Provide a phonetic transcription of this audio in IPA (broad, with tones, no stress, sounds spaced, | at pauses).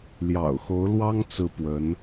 l j ɑ̰˨˩ ʊ̯ x o˧˥ ʊ̯ l w ɑ˥ ŋ t͡s ɹ̩˥ p w ə˧˥ n